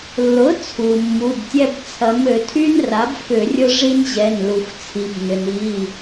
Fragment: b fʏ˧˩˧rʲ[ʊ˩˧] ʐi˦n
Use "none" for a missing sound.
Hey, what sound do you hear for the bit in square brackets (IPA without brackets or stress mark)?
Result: ʊ˦